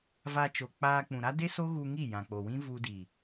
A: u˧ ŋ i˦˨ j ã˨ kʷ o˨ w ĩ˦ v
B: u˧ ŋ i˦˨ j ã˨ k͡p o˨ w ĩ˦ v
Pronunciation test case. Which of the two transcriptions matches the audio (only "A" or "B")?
B